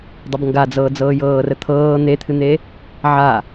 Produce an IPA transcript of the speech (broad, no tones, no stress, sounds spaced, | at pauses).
dˤ ə b ŋ ɡ a d͡z ɤː d͡z ɤː j ɤː r ə t̪ʰ ɤː n̪ e t̪ʰ ɨ n̪ e | ʕ a